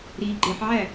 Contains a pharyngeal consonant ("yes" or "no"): yes